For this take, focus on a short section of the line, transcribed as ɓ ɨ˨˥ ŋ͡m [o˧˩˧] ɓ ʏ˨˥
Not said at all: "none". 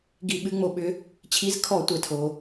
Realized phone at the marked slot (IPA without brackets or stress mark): o˧˩˧